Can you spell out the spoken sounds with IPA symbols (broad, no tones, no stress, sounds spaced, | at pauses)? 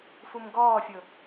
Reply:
f u m ɡ ɔː fʲ ʊ